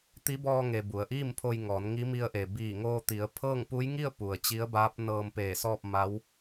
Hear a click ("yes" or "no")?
no